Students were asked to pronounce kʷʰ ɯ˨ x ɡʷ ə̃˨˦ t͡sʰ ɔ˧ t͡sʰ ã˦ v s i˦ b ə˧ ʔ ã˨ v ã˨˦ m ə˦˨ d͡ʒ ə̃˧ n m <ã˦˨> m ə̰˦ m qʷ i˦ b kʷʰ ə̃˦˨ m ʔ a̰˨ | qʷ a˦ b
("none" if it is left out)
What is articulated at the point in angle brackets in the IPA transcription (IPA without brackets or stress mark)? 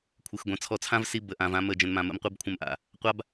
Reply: ã˧